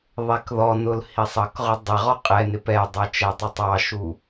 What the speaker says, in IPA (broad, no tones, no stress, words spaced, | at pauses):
ðˤɛkðɔnʊl hisˤʌkʁʊ dˤɪʁɔ qʼɛnɪ pɛdˤʌ t͡ʃætˤɪtˤɑʃu